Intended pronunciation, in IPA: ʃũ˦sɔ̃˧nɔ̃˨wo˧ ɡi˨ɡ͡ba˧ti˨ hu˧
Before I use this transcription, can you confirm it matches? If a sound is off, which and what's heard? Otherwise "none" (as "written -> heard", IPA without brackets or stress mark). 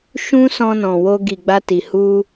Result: none